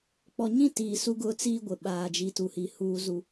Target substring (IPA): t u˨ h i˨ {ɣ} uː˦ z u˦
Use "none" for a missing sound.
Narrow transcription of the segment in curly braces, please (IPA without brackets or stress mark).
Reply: h